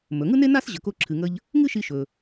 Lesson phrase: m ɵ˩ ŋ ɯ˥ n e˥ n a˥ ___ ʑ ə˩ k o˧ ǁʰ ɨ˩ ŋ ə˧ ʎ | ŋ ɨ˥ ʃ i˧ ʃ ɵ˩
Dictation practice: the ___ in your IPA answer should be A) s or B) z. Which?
A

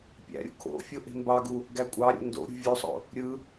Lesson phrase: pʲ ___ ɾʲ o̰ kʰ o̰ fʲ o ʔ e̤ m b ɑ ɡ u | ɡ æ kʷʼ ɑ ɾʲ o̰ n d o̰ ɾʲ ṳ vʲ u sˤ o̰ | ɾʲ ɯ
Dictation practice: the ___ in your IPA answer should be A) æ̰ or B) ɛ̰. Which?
A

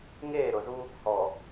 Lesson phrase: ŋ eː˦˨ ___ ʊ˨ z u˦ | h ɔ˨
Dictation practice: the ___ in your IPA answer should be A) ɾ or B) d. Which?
A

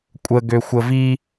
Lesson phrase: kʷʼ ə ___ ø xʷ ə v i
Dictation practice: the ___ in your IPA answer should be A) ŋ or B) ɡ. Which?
B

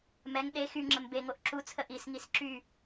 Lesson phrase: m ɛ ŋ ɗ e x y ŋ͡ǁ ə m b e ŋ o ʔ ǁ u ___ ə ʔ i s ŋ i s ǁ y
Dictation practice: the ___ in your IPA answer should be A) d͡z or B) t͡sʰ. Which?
B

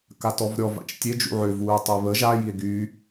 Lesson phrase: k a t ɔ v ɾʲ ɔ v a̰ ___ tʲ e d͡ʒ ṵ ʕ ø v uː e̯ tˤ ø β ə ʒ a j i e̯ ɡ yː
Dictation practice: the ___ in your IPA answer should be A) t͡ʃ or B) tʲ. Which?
A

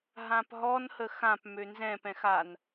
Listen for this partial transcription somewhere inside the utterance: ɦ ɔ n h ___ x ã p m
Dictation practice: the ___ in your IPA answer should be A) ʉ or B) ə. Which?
B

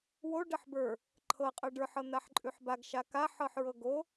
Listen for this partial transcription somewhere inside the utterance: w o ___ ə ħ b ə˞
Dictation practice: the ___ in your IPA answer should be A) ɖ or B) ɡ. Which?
A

